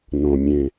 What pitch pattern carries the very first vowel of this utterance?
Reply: low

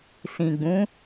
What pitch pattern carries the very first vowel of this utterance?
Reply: low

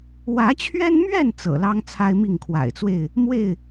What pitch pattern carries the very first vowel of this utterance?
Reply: rising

